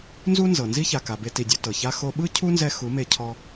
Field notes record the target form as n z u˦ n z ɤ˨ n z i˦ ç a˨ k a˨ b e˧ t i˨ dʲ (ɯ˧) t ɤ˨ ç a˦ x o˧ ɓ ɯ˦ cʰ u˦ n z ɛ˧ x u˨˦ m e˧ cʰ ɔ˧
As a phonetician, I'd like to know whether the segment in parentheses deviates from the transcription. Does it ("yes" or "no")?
yes